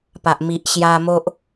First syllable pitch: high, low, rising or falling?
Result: low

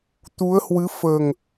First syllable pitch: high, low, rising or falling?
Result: rising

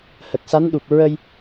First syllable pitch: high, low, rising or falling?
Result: low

